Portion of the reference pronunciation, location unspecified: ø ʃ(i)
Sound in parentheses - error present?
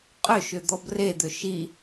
no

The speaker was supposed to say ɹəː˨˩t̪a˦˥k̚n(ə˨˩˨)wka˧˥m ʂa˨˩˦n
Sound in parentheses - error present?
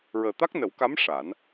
yes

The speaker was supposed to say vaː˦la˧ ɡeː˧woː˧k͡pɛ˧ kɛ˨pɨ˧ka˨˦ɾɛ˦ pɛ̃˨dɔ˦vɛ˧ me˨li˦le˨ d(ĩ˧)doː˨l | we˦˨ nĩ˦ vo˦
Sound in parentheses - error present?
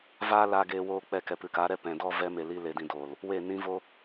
no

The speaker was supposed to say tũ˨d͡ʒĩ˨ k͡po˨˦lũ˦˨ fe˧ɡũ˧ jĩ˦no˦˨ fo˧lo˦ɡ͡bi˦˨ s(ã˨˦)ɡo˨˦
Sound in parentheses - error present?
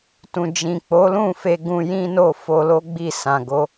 yes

